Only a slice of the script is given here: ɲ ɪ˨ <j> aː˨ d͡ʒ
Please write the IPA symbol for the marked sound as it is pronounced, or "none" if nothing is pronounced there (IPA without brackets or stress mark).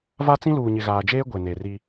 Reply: ɣ